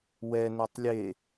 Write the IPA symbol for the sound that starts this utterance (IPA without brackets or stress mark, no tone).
w